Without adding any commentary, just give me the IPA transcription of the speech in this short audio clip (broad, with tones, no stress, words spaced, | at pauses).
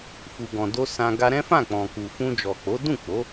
fu˨ɡɔ̃˨do˧ sã˧ ɡa˧ɾɛ̃˦fã˦˨ k͡pɔ̃˨ku˨ fũ˧d͡ʒɔ˨k͡po˨˦ dũ˦˨k͡po˨˦